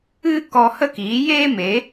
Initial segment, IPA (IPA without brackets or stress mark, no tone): ɨ